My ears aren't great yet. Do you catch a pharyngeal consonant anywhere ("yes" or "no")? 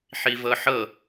yes